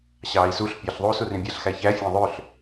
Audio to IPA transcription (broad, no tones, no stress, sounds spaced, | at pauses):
ɕ ɑː i̯ s u ɬ pʲ ɑ ɬ ðˤ uː s u r ĩ bʲ æ ɬ x æ ç æ fʲ æ̃ ðˤ ø ɬ